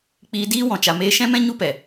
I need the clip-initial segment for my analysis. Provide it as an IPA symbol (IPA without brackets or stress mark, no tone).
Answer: k͡p